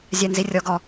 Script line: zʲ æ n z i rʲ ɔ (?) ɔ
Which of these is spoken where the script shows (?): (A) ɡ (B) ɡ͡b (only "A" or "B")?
A